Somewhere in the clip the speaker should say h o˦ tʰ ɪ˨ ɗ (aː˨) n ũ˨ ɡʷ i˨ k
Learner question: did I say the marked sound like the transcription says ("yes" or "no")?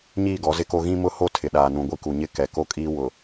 yes